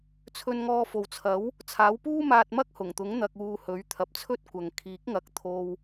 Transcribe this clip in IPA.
t͡sʰ ɵ˧ n ŋ ɔː˧ f o˨ w t͡sʰ ɐ˨˥ w | t͡sʰ aː˨˥ w p uː˥ m aː˧ t̚ m ɐ˥ k̚ h ʊ˨˩ ŋ t̪ ʊ˨˥ ŋ n̪ ɐ˧ k̚ uː˧ h ɵ˨˥ ɥ t̪ʰ ɐ˨ p̚ t͡sʰ ɵ˥ t̚ kʷ ɐ˨ ŋ kʰ iː˨˥ k̚ ŋ ɐ˨˥ k̚ t̪ʰ o˧ w

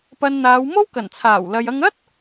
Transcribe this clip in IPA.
p ɐ˧ n n̪ aː˨˧ w m o˥ w k ɐ˨˩ n t͡sʰ aː˨˩ w l ɐ˨ j ɐ˧ ŋ ɐ˥ t̚

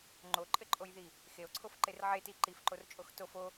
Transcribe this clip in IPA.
ŋ͡ǃ o ǃʼ ɘ ǃʼ o j ð i | x e o̯ ǀʰ o f ǃ e r ʕ e t i ǃ i f ǃ o r t͡ʃʼ o x t o f o

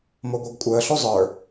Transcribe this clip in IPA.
m o ɡʷ œ ɡ kʷʼ əː ɬ o zˤ ə˞

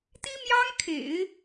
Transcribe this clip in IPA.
t̪ i˥ m j ɑ˥ ŋ kʰ ḛ˨˩˦ ɪ̯

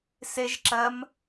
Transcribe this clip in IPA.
s e ʒ ǁ ɜ m

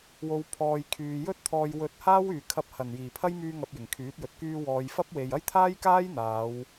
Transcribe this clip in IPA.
w o˨ w pʰ ɔː˨ j kʰ yː˨ j ɵ˥ t̚ t̪ʰ ɔː˧ j w ɵ˧ t̚ h aː˥ w yː˨ kʰ ɐ˧ p̚ h ɐ˨˩ n j iː˨˩ pʰ ɐ˥ j m yː˧ ŋ ɐ˨ p̚ j ɪ˨˩ ŋ kʰ yː˨˥ t̚ j ɵ˨ t̚ k yː˧ w ɔː˨ j f ɐ˥ p̚ w e˨ j ɐ˥ j t̪ʰ aː˥ j k aː˥ j n̪ aː˨˧ w

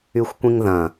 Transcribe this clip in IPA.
y xʷ kʷ ĩ ŋ ð ɐ̃

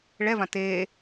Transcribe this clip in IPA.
ɭ ɛ v ã t eː

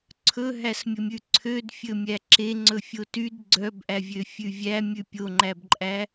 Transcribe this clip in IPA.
ǀʰ ɵ ɦ æ s mʲ ɵ mʲ ʉ ǀʰ ø d fʲ ɵ mʲ æ ǁ e ŋ͡ǀ ɵ fʲ o t y d ɡ͡ǀ œ b ʔ æ vʲ ø fʲ ʉ vʲ æ mʲ ʉ pʲ o ŋ͡ǃ æ b ǃʼ æ

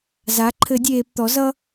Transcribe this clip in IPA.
z a˩˥ ǃʰ ɘ˨˩˦ dʲ eː˨ p t̪ ɔ˩˥ z ʌ˦

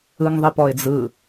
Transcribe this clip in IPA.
ɯ ŋ ðˤ i p ɔ ɪ̯ d͡z ɯ

